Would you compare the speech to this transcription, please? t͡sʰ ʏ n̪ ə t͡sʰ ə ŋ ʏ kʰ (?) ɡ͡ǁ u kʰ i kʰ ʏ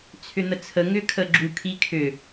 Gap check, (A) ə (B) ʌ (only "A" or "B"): A